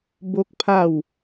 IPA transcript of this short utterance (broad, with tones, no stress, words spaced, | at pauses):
bo˦k̚pʰa˥˧w